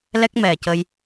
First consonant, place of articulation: alveolar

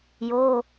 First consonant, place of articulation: palatal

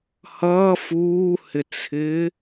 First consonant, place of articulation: glottal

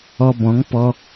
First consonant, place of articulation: labial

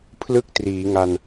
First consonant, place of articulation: labial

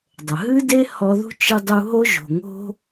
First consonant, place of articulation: alveolar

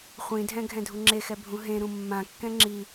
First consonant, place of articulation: uvular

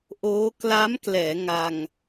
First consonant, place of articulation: glottal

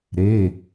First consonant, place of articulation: alveolar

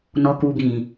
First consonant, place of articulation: alveolar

